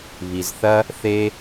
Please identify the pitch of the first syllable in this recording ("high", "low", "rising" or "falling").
low